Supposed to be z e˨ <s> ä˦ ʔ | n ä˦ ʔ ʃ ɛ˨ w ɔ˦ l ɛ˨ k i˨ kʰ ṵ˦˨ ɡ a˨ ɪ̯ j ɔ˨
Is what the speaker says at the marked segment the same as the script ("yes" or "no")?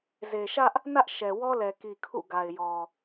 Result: no